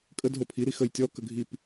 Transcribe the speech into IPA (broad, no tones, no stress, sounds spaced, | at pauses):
kʼ ə d ɦ o pʰ i ɾ i x ə j tʲ ɔ k ə ɡʱ i p